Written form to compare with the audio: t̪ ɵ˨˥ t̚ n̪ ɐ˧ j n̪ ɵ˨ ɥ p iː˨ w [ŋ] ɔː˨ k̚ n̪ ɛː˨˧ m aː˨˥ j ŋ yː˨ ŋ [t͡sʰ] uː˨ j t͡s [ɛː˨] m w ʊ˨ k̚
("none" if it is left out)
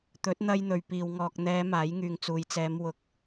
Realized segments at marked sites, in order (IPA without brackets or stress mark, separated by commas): ŋ, t͡s, ɛː˨˧